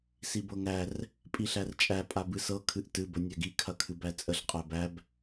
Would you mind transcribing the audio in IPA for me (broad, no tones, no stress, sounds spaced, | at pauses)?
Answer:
s i b ɤ ŋ æ r | pʼ i ɬ æ r t͡ʃʼ æ pʼ a b ɨ s ɤ kʰ ɨ ʔ t ɨ b ə nʲ æ ɡ i kʰ ɐ kʰ ɨ b æ t͡sʼ ə ɬ qʼ æ b æ b